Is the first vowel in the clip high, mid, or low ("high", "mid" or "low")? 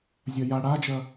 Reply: low